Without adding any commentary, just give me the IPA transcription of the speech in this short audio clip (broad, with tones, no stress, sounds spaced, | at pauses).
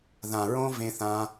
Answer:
ð ã˨ ɹ õ˧ v ẽ˧ θ ã˧